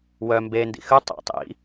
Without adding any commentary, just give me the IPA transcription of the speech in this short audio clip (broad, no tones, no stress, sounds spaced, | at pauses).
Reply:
w œ m b e n d ḭ x ʉ tˤ ḛ tˤ ḭ